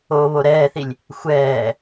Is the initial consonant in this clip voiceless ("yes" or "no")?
no